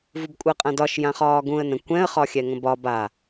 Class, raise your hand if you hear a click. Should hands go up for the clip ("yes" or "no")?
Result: no